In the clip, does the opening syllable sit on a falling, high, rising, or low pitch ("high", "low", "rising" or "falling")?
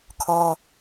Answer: high